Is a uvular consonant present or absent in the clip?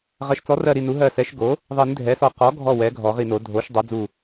present